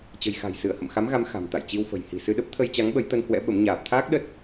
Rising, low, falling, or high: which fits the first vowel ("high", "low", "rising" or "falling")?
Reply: low